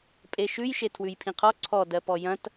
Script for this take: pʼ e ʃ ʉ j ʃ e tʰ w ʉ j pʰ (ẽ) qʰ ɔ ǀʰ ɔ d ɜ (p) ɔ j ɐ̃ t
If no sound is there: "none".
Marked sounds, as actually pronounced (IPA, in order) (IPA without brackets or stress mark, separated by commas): ĩ, p